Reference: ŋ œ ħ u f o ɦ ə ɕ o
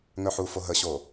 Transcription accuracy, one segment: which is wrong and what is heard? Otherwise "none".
none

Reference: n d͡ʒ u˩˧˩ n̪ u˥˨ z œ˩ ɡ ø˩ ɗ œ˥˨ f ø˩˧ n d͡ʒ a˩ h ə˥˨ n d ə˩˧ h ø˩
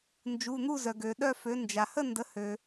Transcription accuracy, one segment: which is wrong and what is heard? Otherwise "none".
none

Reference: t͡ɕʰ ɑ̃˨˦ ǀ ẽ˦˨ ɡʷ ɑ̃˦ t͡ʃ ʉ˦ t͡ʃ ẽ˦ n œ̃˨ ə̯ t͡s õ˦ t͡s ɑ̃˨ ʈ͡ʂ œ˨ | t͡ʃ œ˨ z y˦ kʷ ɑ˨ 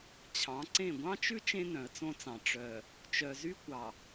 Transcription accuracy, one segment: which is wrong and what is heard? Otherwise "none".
none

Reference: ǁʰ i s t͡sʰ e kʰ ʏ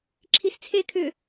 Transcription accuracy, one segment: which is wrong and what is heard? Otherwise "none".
none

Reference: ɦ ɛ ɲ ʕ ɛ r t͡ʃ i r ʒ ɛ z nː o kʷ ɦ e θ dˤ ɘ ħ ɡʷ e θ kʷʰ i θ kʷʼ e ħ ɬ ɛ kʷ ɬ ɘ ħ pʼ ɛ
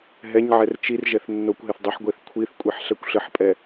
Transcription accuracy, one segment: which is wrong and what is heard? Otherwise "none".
z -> θ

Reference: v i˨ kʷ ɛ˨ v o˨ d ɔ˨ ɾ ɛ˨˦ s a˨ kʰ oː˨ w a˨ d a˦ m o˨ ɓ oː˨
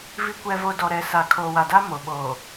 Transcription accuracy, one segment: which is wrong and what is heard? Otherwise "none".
none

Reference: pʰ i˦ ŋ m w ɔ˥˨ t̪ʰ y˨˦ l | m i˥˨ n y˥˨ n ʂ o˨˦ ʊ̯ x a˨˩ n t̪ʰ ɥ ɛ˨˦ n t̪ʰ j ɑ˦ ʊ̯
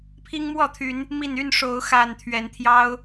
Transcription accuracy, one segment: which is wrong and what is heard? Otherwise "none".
l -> n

